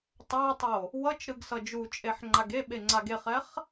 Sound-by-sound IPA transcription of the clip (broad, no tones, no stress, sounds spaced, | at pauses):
tˤ a tˤ o | w ʌ t͡ʃ ɾ ɯ ɡ s ʌ d͡ʒ u t͡ʃʼ e ħ ŋ͡ǃ a ɡ e ɓ e ŋ͡ǀ a ɡ e χ ɛ χ